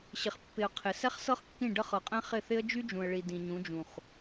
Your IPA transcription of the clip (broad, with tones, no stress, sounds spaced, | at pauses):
ɕ ɪ˨ χ pː ɪ˨ ə̯ qʰ ɪ˨ s ɛ˦ χ s ɤ˦ χ kː ĩ˦˨ ɖ ə˦ χ ɤ˨ qʼ ɛ̃˦ χ ɪ˦˨ θ ɪ˦ ə̯ d͡ʒ y˦ d͡ʒ ũ˨ ə̯ ɭ i˨ d ĩ˨ ɲ ũ˨˦ d͡ʒ ũ˨ χ